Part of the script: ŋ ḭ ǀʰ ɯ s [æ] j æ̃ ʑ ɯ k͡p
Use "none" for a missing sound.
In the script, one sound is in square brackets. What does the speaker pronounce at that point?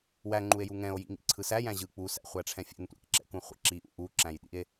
æ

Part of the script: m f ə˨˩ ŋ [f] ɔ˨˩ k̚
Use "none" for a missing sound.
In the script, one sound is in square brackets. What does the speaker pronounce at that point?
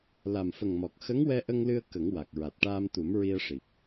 m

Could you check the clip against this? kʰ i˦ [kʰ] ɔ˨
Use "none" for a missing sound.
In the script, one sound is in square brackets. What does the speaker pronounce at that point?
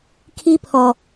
pʰ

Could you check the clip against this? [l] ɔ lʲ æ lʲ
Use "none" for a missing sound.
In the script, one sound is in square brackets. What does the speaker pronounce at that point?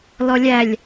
l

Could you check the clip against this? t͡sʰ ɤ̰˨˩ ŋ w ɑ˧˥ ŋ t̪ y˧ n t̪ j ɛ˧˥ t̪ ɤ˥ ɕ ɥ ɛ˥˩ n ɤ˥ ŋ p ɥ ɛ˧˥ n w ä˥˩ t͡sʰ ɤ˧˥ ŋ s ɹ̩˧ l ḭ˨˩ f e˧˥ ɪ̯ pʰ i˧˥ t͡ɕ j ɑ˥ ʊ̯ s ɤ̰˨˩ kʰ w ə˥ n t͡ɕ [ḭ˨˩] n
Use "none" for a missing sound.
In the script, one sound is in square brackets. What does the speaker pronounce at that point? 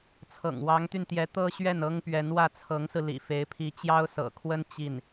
i˥˩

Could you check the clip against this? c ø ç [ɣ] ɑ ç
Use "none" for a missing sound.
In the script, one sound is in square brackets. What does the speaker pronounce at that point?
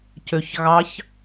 ɣ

